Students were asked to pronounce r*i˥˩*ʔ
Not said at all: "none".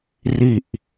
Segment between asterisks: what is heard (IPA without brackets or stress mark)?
i˨˩